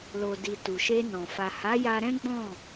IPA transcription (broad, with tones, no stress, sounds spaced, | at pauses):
l o˨ d i˨ t u˨ ʃ e˧ n ɔ̃˨ f a˨ h a˨˦ j a˧ ɾ ɛ̃˦ ɡ͡b ɔ̃˦˨